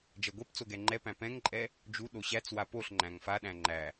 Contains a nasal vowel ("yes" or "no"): yes